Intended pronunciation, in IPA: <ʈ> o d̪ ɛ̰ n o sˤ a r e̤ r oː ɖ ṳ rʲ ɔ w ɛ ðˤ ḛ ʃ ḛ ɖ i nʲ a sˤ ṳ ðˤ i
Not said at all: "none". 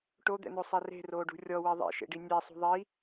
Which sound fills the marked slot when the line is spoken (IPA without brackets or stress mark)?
ʈ